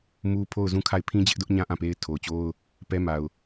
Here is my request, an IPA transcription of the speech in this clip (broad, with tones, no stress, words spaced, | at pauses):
mu˦pʰo˦˨ʊ̯zũ˦˨kʰa˦˨ɪ̯ pʰĩ˦d͡ʑɪ˦ʔdʊ˦ʔɲã˦ ʔã˦˨pe˦ɪ̯tʰo˨ʊ̯t͡ɕo˦ʊ̯ | pɛ˦ma˨ʊ̯